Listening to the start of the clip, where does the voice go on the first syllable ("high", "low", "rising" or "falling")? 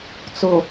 low